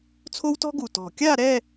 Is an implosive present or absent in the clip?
absent